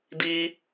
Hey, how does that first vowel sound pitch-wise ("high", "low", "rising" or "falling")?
high